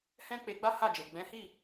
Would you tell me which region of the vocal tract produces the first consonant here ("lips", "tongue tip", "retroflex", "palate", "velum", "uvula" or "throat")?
throat